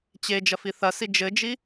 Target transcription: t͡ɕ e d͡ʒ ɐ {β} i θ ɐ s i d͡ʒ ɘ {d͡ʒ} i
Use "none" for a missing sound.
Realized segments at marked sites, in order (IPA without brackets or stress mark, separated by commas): f, d͡ʒ